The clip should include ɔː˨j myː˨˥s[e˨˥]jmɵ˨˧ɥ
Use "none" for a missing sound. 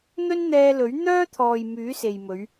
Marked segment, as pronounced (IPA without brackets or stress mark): e˨